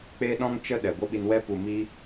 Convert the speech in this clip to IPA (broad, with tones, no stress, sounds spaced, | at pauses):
k͡p eː˦ ɗ ɔ̃˦ ŋ t͡ʃ ə˦ ɗ ɛ˨ ɡʷ ə˦ ɓ i˧ n w ɛ˧ p u˨ m i˧